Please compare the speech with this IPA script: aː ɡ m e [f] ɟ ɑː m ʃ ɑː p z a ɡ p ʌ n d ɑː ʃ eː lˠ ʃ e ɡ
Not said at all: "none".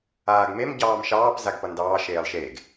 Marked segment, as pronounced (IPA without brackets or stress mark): m